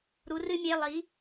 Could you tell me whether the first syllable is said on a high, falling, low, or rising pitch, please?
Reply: rising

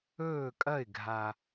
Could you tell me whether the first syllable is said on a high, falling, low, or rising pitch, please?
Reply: falling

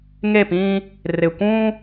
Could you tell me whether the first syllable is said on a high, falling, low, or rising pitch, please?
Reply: falling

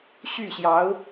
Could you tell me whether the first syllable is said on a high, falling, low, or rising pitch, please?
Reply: falling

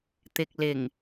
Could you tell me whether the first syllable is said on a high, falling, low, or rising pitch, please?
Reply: low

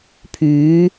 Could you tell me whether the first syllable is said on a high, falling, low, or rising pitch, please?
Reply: rising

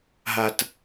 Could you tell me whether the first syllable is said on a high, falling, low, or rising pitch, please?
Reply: low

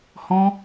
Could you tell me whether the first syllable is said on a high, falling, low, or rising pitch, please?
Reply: high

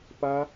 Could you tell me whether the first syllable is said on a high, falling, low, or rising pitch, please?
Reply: high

